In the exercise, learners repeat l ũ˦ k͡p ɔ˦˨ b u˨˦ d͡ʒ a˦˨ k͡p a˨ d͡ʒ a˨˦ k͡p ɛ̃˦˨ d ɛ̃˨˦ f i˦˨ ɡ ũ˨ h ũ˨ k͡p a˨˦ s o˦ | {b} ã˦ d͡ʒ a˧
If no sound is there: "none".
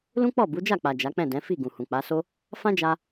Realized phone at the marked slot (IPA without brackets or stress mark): f